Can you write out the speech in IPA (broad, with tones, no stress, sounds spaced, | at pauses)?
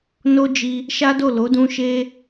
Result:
n o˦ d͡ʒ i˧ | ʃ a˦ d o˦˨ l o˨˦ d ũ˧ ʃ e˧